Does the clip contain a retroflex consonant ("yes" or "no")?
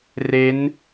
no